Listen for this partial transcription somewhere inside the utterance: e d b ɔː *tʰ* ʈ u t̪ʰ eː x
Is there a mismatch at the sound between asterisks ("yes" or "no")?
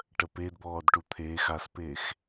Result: yes